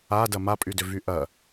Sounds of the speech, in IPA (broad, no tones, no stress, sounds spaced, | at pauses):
a d ɐ m a pʼ y d ʏ v y ʔ ɐ